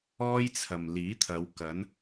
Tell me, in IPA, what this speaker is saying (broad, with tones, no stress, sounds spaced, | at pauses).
ɔː˥ j t͡sʰ ɐ˨ m l iː˨˥ t̪ʰ ɐ˨˧ w k ɐ˨˥ n